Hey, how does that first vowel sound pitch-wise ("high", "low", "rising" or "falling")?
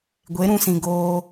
rising